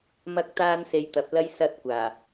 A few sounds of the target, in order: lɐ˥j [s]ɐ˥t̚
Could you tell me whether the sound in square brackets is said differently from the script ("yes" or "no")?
no